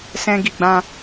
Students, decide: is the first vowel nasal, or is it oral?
nasal